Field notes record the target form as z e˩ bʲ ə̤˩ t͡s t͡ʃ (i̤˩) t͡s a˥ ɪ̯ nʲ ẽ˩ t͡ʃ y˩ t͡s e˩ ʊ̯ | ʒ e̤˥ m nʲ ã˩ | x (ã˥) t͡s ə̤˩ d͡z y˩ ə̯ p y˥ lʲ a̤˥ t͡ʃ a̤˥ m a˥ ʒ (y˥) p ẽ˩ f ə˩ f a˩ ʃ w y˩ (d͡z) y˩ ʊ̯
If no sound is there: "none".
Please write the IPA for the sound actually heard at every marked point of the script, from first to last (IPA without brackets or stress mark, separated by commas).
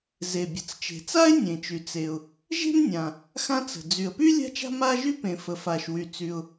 e̤˩, ã˥, y˥, t͡s